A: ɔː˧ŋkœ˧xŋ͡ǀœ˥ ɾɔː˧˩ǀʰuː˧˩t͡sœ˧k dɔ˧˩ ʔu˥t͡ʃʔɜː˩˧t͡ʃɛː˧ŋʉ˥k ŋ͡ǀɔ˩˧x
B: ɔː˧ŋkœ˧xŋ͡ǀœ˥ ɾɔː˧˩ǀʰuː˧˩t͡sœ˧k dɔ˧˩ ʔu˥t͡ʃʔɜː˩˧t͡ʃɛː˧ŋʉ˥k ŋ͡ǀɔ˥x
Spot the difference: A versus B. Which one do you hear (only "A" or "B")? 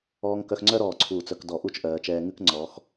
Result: A